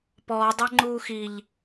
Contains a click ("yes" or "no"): yes